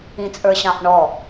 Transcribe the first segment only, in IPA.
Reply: ĩ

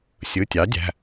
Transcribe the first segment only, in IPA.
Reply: sʲ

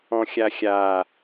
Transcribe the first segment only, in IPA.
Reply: ɔ̃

